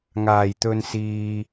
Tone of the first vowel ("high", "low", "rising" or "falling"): low